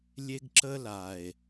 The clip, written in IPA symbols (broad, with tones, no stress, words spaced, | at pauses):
lʲe˦ɡǁə˦la˨e̯